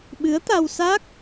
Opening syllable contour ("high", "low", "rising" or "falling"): rising